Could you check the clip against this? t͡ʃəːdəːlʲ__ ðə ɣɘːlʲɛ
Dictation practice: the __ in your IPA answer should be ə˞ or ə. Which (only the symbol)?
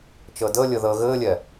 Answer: ə